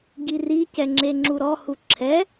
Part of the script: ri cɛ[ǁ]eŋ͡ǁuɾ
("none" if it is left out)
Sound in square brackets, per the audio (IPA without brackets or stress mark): ŋ͡ǁ